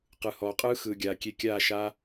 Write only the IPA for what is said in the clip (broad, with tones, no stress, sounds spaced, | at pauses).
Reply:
q ɯ˨ h ɔː˨ qʼ ɯː˦ x ɯː˨ ɡʲ aː˨ kʲ e˧ kʲ aː˦˨ ʃ a˦